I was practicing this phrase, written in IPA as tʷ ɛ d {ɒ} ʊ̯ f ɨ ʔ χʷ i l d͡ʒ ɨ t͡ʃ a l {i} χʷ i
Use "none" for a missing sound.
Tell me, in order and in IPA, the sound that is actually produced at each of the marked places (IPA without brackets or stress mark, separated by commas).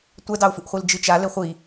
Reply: ɑ, e